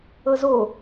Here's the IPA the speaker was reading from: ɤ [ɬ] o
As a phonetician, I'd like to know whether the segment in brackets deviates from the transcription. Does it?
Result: yes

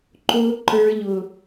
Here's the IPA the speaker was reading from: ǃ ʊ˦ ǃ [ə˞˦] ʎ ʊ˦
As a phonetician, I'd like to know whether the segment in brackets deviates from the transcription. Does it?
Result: no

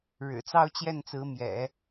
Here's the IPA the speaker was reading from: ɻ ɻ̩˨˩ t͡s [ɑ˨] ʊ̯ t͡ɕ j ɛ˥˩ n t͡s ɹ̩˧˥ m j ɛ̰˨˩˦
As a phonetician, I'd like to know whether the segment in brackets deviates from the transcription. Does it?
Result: yes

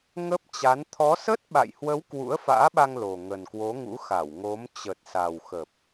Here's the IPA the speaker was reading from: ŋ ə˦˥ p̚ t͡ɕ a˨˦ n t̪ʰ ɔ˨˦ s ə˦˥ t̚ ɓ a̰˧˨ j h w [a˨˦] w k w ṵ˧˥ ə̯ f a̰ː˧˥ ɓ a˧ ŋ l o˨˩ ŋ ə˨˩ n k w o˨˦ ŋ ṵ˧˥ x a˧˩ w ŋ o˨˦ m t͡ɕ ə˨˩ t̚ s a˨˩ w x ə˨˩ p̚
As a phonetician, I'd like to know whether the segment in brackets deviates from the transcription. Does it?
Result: yes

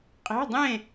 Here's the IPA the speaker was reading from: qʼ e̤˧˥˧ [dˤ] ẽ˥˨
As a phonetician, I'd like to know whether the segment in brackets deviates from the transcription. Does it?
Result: no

